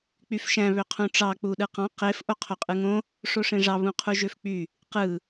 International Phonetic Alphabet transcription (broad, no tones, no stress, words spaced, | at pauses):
k͡pyfʃæ̃ βøqʰũʈ͡ʂɑ k͡puɗɯqɑ̃ qef ʔoqʰoqʼɯŋõ | ʂoʂẽʐɑ βũqʰuʒøfk͡py | qɯ